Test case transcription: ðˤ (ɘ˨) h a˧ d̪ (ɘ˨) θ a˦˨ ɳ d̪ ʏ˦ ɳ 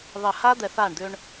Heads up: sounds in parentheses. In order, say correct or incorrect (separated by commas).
correct, incorrect